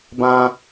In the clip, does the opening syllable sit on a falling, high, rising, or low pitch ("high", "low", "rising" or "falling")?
high